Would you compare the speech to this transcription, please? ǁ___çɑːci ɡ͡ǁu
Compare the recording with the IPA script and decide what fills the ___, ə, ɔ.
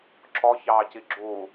ɔ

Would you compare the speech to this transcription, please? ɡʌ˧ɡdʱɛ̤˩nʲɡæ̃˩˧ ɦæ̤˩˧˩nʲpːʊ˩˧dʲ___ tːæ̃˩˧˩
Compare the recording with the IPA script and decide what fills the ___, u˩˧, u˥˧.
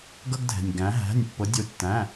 u˩˧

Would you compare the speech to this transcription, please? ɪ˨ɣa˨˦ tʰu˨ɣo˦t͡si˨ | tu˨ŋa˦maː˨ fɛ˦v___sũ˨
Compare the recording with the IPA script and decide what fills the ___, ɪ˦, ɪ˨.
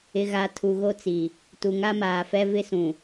ɪ˦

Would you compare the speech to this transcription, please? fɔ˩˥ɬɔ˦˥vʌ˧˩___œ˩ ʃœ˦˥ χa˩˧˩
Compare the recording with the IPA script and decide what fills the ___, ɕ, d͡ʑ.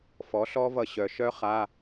ɕ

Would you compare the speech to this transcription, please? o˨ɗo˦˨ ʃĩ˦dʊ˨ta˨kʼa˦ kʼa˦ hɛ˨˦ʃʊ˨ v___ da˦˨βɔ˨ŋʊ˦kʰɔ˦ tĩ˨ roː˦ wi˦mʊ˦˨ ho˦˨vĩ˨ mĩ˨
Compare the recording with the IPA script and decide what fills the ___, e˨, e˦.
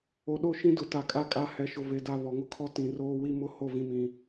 e˨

